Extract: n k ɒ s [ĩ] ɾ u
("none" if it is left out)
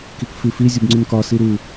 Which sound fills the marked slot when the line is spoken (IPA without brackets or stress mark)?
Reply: i